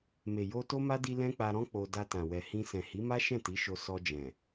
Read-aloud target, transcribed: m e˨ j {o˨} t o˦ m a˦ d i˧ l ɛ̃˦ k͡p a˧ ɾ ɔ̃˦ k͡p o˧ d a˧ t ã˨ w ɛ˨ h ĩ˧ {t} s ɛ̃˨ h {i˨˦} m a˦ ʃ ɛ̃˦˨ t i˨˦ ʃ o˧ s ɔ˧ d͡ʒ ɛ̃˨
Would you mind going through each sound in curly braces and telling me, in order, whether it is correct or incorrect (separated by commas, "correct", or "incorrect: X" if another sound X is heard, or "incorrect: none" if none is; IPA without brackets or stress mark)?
incorrect: o˧, incorrect: none, correct